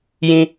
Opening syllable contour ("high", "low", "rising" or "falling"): high